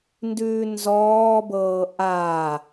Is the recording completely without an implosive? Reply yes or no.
yes